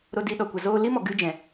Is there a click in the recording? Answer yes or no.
no